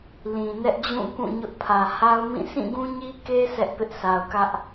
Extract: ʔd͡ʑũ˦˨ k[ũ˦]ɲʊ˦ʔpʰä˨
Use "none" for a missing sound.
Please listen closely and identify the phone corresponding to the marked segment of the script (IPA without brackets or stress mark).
ũ˦˨